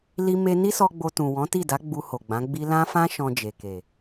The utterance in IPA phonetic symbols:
l i˧ m e˧ n i˦ s ɔ˧ ɡ͡b o˧ t ũ˨ w ɔ̃˨˦ t i˦˨ d a˨˦ ɡ͡b u˧ h o˨ ɡ͡b ã˨˦ ɡ͡b i˦ l ã˦ f ã˦ ʃ ɔ̃˧ d͡ʒ e˨ k e˨

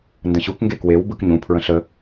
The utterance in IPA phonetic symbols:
n d ə̃ ɕ u k ŋ ɡ e k w e w b ɯ k ɲ ũ pʰ ɹ ə̃ ɬ ə

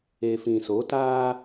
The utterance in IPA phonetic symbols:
e˨ f ĩ˨ s o˨˦ t aː˦

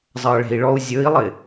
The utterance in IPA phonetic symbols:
zˤ ʌ ɭ e̤ i̯ ɭ ɔ u̯ zʲ ɵ i̯ lˠ ɪ

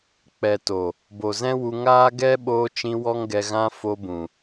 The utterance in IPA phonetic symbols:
k͡p ɛ˨ t o˨ | b o˨ z ɛ̃˦ w u˧ ŋ aː˦ ɡ ɛ˦ ɓ oː˧ t͡ʃ ĩ˧ w ɔ˦ ŋ ɡ ɛ˧ ɣ ã˦ f o˧ b ũ˨

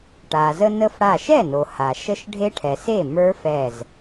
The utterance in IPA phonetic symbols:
ʈ a˩ z ə˧ n ə˧ f ɽ a˧˩ ʃ ɛ˥˩ n o˩ h a˩ ʃ ə˧ ʃ ɖʱ e˦˥ ʈʰ ɛ˩ s e˥˩ m ə˞˦˥ f ɛ˧˩ z

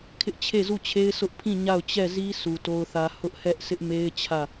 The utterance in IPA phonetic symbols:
kʰ ɪ˦ ʔ t͡ɕʰ e˦˨ z u˦˨ t͡ɕʰ e˦ ɪ̯ s ʊ˦ ʔ pʰ ĩ˦˨ ɲ a˦˨ ʊ̯ t͡ɕ ɛ˦˨ z i˦ sʰ u˨ t o˦ ʊ̯ θ ä˦ h ʊ˦ ʔ h ɛ˦ ʔ sʰ ɪ˦ ʔ m e˦ ɪ̯ t͡ɕʰ ä˦˨

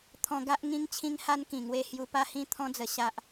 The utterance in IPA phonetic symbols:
t̪ʰ ɔ̃˧ ɡ a˦ ʔ ŋ ĩ˧ ŋ t͡ɕʰ ĩ˧ ŋ h a˦ n k ĩ˨˩ ŋ w e˧ h j u˧ p a˥˧ h ĩ˥˧ t̪ʰ ɔ̃˦ d͡z ə˧ ɕ a˦ ʔ

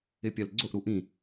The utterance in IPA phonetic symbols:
ɪ pʲ œ l ɡ͡ǀ ʊ ʔ ɾ u ʔ ĩ

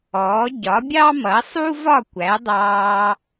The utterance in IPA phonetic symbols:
ɔː˩˥ ɟ ɒ˩˥ bʲ ɑ˥ m ʌ˩˥ sˤ u˥ v ɒ˥˩ kʷ æ˩˥ dˤ ɑː˧

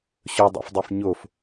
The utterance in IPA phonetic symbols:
ɕ ɵ dˤ o̰ f dˤ e f ɲ o f

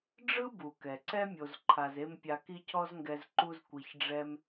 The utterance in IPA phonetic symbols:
ɖ͡ʐ ɯ˦ b u˨ k ɛ˨ ǀ ɛ˦ mʲ o˧ z ǃʰ a˧ z e˦ m pʲ a˧ k i˦ cʰ ɔ˦ z ŋ ɡ ɛ˧ z ǃ u˦ z kʷ i˧ ç ɖ͡ʐ ɛ˦ m

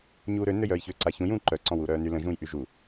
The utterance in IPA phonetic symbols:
ɲ uː ɾ ø n ø j œː j ç ø ǀ a ç ũ j ũː ǃ œ ǀ ɔ̃ w uː ɾ œː n y l ə̃ ʒ ũː j ʔ y ʒ u

